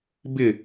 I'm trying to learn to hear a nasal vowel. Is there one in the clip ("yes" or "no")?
no